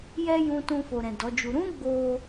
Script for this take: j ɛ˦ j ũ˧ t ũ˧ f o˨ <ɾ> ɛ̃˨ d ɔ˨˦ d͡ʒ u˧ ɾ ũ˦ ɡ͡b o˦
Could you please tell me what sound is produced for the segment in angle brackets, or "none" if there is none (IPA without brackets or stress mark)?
ɾ